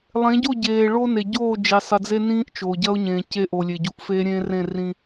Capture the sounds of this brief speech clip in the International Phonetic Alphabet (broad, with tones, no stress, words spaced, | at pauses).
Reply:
lˠẽ˨˦ɟo˦˨ɟeː˨ ɭo˦ne˨ ɟoː˦˨d͡ʒi˨sˤɨ˨d͡ze˦ nĩː˦ʔt͡ʃoː˨ɟɐ˦ʊ̯ɲẽː˨ ce˦ ʔo˨lʲe˨ɟu˨ʔfeː˦ ɾʲẽː˦rẽ˦˨ rĩ˦